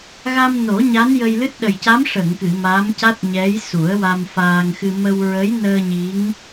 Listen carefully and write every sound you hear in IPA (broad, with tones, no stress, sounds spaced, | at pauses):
ɣ a˧ m n o˨˩˦ ɲ a˧˥ n j ə˧ j l ɨ˦˥ t̚ ɗ ə˨˩ j c a˧˥ m ʂ ə˨˩˨ ŋ k ɨ˨˩˨ m a˧˥ m c a˦˥ t̚ ɲ ɛ˧˥ j s u˨˩˦ ə̯ w a˧ m f aː˧ ŋ x ɨ˧ m ə˧ w ɹ ə˧˥ j n əː˧ ɲ i˧˥ ŋ